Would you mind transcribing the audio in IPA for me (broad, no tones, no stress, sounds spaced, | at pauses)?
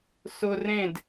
s ʊ r ẽ d